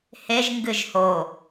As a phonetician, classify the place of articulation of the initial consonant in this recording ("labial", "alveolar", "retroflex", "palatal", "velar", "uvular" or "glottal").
glottal